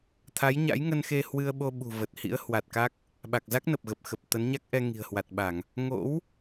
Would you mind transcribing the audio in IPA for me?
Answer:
t̪ʰa˨˦jɲa̰˧˥jŋə˧nxe˧ hwɨ˧ə̯ɓo˧ɓṳ˨˩ və˨˩t̚ hḭ˧˥ə̯hwa˨˩t̚ka˦˥k̚ | ɓa˨˩k̚za˦˥k̚nə˨˩p̚ɣə˨˩p̚ xə˨˩p̚t̪ə˨˦nɲa˦˥k̚ʔɛ˧ ŋi̤˨˩ə̯hwa˨˩t̚ɓa˧˩˨ŋ | ŋo̰˧˥w

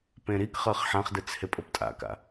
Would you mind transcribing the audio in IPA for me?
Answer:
pẽɾikχɤχ ħãχdɯt͡s hepʼoptʼa̰ka̰

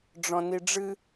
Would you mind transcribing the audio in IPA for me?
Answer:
ɖ͡ʐɔ̃niɖ͡ʐɨ

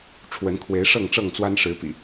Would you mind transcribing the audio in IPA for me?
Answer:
ʈ͡ʂʰwə˨˦nkʰwe˨˦ɪ̯ ʂɤ˥˨ŋʈ͡ʂɤ˥˨ŋt͡swa˦n ʂɻ̩˨˦pḭ˨˩

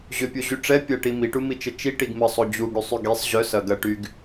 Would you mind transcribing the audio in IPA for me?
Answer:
ʑʏpʲoʑy ʈ͡ʂɛ pʲɐʈi miʈumit͡ʃə t͡ʃiʈiɡ məsˤo d͡ʑuɡɽysˤy ɡisˤ ʑœsɐ ɡɐʈyɡ

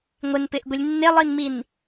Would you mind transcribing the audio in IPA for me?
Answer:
ŋʷɪnpɪʔɡʷilʲ nːelˠinmin

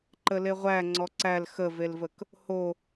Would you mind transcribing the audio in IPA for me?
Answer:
ǃəleʁʷæŋ͡ǀɔ ǀæl xəvelvək | ho

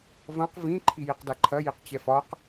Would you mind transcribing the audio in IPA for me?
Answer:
vɐ̃q vĩ ǃʰijiqdaǃʰɐ jiqt͡ɕɛfɒq

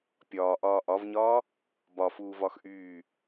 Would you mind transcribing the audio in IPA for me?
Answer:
pʲɒːʔɒː ʔɒvɲɒː | bɒfuːvɒx ʔyː

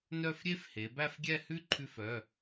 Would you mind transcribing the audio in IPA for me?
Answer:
nœ˥˧fɾʲe˥fhe˨˦ bæ˥˧fɡʲɛ˥˧hʉ˥ ǃʰʉ˥fœ˧˥˧

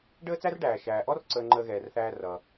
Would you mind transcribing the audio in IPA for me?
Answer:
ɖəː˥t͡sæ˥rɖæː˩ ʃæː˩ʔɔ˥r ǀəː˧ŋ͡ǃəː˧ɣɛː˩rθæː˧ rʌ˩

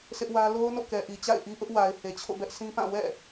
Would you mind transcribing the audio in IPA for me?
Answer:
sʰɪ˦ʔwä˦ lo˦ʊ̯no̰˦˨ kɛ˨ʔi˨t͡ɕa̰˦˨ɪ̯ʔi˦ ʔʊ˦ʔwa˨ɪ̯ he˨t͡ɕʰo̰˦˨ bɛ˦ʔsĩ˦pã˦˨ wɛ̰˦˨

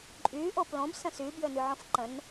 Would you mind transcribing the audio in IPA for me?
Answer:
ǃʼy ʔoplõb sə̃sy bjønyʕõfǃə̃n

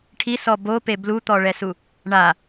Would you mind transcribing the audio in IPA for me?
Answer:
ʈʰisɔ bope blut̪ɔɭɛsu | ɳa

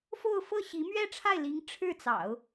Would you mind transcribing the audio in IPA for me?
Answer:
fo˥˧ʊ̯fɤ˥˩ɕi˧˥ mɥɛ˥˧ʈ͡ʂʰa˥˩ɪ̯li˧˥ŋ ʈ͡ʂʰɻ̩˥˩t͡sɑ̰˨˩˦ʊ̯

